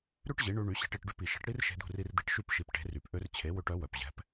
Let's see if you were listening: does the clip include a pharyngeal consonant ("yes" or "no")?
no